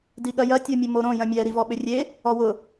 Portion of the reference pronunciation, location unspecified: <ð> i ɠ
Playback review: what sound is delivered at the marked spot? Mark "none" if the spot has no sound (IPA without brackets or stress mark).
d